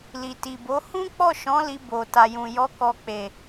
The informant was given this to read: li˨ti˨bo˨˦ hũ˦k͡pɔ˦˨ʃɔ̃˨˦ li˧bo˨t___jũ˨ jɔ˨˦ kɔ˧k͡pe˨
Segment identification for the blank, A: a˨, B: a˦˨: A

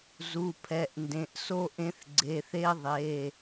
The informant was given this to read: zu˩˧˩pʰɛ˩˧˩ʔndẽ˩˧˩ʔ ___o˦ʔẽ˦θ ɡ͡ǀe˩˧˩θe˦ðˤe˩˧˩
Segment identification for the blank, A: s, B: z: A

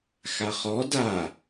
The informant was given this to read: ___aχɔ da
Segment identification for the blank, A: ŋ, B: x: B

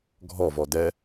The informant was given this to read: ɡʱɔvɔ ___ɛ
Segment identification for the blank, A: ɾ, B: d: B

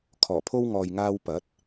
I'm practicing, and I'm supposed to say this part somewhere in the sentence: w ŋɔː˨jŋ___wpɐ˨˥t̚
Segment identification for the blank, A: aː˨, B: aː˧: B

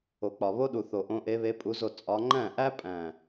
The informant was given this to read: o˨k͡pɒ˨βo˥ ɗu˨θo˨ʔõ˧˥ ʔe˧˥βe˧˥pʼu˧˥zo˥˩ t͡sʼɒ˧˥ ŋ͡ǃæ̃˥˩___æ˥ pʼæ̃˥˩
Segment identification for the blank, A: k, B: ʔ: B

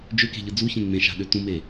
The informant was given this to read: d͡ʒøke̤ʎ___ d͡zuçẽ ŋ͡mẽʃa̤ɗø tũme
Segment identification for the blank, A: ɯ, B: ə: A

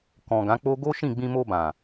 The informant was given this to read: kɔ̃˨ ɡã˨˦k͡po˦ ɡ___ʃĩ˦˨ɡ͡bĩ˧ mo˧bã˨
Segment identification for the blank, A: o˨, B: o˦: B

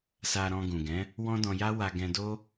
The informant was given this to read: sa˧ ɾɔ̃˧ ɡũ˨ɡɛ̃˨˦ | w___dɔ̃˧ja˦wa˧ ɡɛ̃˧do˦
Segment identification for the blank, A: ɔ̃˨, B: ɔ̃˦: B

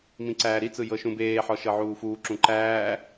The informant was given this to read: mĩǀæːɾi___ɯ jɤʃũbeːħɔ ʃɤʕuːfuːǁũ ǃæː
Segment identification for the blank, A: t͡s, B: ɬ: A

